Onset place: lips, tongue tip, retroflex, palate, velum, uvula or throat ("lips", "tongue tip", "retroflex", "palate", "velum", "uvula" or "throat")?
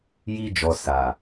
palate